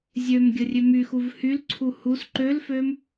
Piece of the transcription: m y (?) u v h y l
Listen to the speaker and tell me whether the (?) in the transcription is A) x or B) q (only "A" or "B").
A